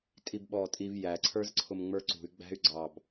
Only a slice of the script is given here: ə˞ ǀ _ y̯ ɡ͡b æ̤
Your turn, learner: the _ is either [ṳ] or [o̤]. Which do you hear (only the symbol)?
ṳ